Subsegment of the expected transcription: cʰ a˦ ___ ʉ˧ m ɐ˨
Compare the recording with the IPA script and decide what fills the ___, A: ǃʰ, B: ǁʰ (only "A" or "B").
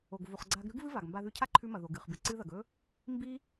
A